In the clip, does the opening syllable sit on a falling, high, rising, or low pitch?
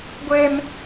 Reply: high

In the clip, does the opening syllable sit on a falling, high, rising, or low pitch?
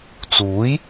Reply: rising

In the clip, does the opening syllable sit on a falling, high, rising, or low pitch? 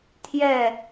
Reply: falling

